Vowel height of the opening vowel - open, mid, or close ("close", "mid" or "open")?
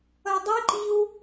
mid